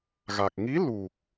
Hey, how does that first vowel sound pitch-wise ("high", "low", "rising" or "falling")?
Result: low